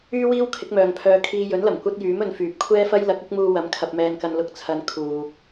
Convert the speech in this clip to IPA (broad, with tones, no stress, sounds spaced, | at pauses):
yː˥ w iː˥ w kʰ ɪ˨˥ k̚ m œː˨ ŋ pʰ œː˧ kʰ iː˧ j ɵ˨˥ n l ɐ˨˩ m kʷ ɐ˥ t̚ j yː˨˥ m ɵ˨ n f yː˨ p̚ kʷʰ ɛː˥ f ɐ˥ j l ɐ˨˥ k̚ ʊ˥ k̚ m uː˧ w ɐ˨˧ m kʰ ɐ˧ p̚ m ɛː˧ n k ɐ˧ n l ʊ˧ k̚ t͡sʰ ɐ˨˧ n kʰ uː˨ k̚